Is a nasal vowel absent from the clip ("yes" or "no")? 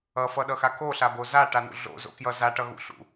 yes